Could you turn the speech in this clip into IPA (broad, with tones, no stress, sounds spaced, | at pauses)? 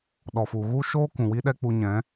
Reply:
ɗ ɔ˨ f u˨ ɣ u˦ ʃ oː˦ k ũ˨ w i˦ ɗ ɛ˦ k͡p u˧ ɲ ɛ̃˨˦